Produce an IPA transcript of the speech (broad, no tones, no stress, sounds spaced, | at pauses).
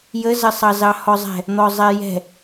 j ə z ə sˤ ɑ z ɑ h ɔ zˤ ɛ̤ | n̪ ɔ zˤ ɛ j ɛ̤